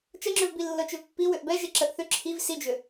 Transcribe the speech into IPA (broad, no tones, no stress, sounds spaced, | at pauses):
t͡ʃ ə ŋ͡ǁ ʏ v b i lː ɤ t͡ʃ ʏ v pː i w ʏ ʔ b ɛ ʒ e ǁ ə ʔ θ ʏ ǁʰ i v s i d͡ʒ ʏ